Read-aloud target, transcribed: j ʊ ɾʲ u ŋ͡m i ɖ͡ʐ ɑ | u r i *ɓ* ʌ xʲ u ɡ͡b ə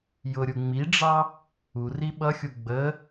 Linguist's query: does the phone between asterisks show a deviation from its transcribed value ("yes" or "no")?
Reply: no